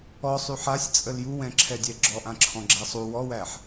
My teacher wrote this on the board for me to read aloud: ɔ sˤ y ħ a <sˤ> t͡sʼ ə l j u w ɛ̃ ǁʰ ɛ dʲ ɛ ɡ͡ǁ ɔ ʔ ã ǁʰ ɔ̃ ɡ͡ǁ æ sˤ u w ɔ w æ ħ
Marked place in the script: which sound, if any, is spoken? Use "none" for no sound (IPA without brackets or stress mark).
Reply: sʲ